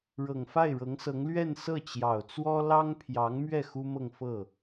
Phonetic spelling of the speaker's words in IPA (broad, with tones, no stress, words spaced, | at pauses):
ɻɤ˨˩ŋfa˥˩ɪ̯ɻɤ˧˥ŋsɤ˧˥ŋ lɥɛ˥˧nsɤ˥˩ t͡ɕjɑ˨˩ʊ̯t͡swɔ˥ lɑ˥ŋpʰjɑ˧˥ŋmɥɛ˥˩ xu˥mɤ˥˧ŋ fɤ˥˩